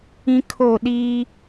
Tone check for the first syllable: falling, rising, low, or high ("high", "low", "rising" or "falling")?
high